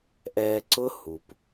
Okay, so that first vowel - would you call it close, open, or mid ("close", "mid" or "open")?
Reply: mid